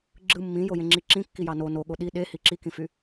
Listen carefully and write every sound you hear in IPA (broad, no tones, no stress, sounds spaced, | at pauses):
ɡ͡ǁ ɯ mː ĩ j o j ẽ ŋ͡ǁ i ǁ ĩ kː i j ɑ n o n o ɠ o ɗ i ɗ e h i ǁ i k ĩ f y